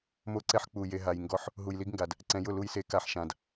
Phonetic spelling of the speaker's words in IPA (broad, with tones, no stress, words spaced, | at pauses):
mo˦ǀɛ˦ħ k͡pu˨ je˨ɦa˨j ŋɡɔ˦ħ | ɦu˨jli˦ɡŋɡa˨d | ǀɛ̃˨jʊ˦˨ lu˦jse˦ ka˦ħʃã˨d